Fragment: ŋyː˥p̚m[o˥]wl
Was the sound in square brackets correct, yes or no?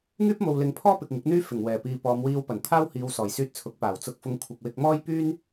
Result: no